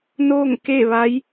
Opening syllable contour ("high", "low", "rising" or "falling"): falling